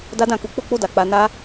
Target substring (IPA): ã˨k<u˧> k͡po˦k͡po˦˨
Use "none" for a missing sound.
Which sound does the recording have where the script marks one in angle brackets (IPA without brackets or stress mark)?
u˧